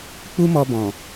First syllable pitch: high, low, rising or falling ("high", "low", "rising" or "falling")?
high